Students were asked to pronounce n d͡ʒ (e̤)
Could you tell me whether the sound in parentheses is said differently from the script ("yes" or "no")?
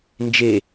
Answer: yes